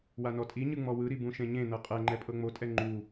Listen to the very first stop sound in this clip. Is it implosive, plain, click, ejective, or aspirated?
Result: ejective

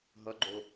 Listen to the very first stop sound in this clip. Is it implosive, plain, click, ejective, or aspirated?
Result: click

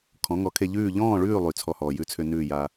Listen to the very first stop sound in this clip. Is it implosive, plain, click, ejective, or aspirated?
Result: aspirated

